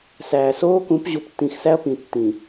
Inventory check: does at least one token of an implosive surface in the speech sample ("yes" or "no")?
no